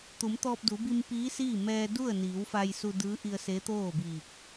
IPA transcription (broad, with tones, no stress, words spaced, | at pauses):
t̪u˩˧mt̪ɔː˧p̚du˩˧ bi˧m piː˧˥siː˥˨ mɛː˧du˥˨ə̯ niː˩˧wfa˧jsu˧ dɯː˧˥ʔi˧ə̯ se˧˥ t̪oː˥˨biː˧˩k̚